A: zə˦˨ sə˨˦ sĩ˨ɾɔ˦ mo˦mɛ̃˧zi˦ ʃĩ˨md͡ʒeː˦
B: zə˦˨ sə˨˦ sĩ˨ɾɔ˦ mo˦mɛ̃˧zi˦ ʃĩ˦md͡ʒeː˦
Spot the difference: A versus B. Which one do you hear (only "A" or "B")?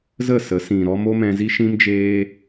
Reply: B